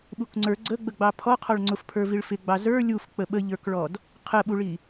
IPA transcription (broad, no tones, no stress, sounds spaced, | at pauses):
ɓ u k ŋ͡ǀ ə˞ ɡ͡ǀ ə ɡ͡b ə ɡ͡b ɑ pʰ ɔ qʰ ɔ ɭ ŋ͡ǀ ʊ f pʰ ə˞ v i ɭ f ɪ ɡ͡b ɑ z ə˞ lʲ u f k͡p ə ɓ ə ʎ ə˞ k ɭ ɔ d | qʰ ə ɓ u ɭ i